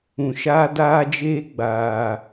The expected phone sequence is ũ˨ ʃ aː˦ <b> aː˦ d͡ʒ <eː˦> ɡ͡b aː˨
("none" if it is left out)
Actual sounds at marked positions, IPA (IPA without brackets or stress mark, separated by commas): d, eː˦